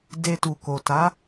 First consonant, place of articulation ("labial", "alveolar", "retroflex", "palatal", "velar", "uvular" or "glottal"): alveolar